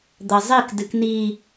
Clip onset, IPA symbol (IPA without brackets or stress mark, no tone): d̪